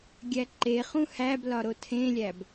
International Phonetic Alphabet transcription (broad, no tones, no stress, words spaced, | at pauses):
ɡʲæǃeχũ hæblɒ ɾotʰẽlʲæb